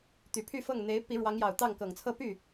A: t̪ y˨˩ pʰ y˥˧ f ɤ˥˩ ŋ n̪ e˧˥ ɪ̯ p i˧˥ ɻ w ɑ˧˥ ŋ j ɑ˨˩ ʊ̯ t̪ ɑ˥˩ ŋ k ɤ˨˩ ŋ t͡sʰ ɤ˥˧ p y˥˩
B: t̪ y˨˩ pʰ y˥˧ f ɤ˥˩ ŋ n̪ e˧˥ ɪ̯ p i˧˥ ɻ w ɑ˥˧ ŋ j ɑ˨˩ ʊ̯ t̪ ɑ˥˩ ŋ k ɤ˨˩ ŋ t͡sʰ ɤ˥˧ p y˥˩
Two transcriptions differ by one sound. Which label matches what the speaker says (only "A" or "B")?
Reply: A